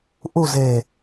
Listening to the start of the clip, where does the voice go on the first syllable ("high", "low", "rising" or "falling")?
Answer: low